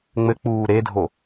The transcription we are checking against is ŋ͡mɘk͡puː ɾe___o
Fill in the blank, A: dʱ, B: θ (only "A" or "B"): A